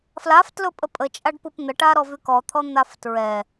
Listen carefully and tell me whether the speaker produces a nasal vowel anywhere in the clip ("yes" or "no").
no